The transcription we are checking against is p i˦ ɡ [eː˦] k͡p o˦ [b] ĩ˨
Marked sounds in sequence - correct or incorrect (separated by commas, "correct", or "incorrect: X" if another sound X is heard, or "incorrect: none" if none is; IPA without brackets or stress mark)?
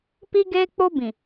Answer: correct, correct